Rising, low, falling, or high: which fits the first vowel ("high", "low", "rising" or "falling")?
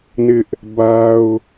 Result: high